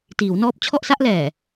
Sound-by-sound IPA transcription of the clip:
t iː˩˦ w n ɔː˦˥ p̚ t͡ɕʰ ɔ˥˩ ʔ s a˥˩ ʔ l ɛː˨˩

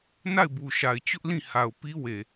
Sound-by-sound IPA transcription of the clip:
n a˦˨ ɪ̯ b u˨ ʃ a˨ ɪ̯ t͡ɕ ʊ˦ ʔ l ĩ˦˨ h a˨ ʊ̯ p i˦ w e˨

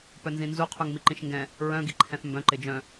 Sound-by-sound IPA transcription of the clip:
p œ n z ĩ n z u qʰ u ŋ m i ǃ ĩ ʃ ŋ ɡ ɛ̃ | ɹ œ̃ ɡ i ǃʰ ɛ̃ θ m b œ̃ ǃ ɪ d͡ʒ œ̃

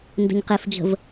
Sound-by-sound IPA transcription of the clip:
n d ə̤ ɲ q e f d͡ʒ ə̤ v

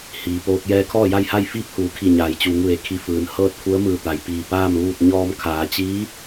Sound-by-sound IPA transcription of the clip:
h iː˩ p oː˧ k̚ j ɛː˧ kʰ ɔː˥˨ j a˥˨ j h a˥˨ j f iː˥˨ p̚ h uː˩˧ kʰ i˧˩ ɲ aː˩ j t͡ɕ uː˩˧ ŋ ʋ e˩ kʰ i˧˩ f ɯː˩ n h ɤː˥˨ t̚ kʰ u˧˥ ə̯ m ɯː˧˩ t̪ a˩ j p iː˧˩ p aː˥˨ m ʋ uː˥˨ t̚ ɲ ɔː˧ m kʰ aː˩˧ t͡ɕ iː˧˥

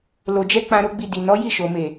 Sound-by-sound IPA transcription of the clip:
l o˨ d͡ʒ ɛ˧ k͡p ã˧ ɾ o˦ ɡ͡b i˧ d i˨ n ɔ˨˦ j i˦˨ ʃ o˨ m e˨

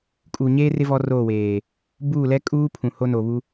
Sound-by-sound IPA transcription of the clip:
kʼ uː˨ ɲ eː˦ r ɪ˦ v ɔ˦ r oː˦˨ w eː˨ | b uː˦˨ l ɛ˦ kʼ uː˦ pʰ ũ˨ h o˦ n o˨ β u˦

